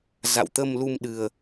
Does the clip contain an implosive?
yes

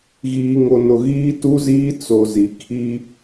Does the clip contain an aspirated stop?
yes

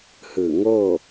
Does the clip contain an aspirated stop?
no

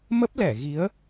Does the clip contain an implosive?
no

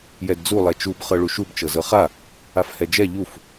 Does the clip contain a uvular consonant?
yes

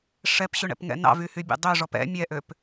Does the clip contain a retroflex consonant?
yes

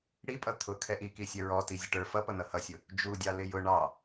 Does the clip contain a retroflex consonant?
yes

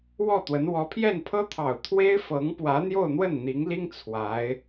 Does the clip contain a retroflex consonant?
no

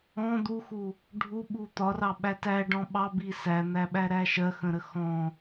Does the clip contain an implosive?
yes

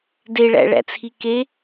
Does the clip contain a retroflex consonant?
yes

